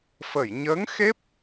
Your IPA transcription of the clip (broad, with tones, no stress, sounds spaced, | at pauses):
f ə˨˩˨ j ɲ əː˧˥ ŋ x e˦˥ p̚